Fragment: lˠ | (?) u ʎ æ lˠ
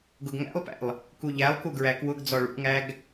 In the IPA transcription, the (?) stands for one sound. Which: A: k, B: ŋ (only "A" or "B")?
A